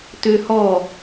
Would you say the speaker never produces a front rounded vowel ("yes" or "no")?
no